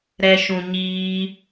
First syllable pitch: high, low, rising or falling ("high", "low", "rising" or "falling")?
low